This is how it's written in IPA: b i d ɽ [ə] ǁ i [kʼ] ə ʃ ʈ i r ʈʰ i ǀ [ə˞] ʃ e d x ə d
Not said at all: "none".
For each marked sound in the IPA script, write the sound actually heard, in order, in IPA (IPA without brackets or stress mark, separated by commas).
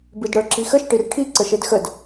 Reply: ə˞, x, ə